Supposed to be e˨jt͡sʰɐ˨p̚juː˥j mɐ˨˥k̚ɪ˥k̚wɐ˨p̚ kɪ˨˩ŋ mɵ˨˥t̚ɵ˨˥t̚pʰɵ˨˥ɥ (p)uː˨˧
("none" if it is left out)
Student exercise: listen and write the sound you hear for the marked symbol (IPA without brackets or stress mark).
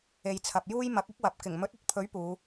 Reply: p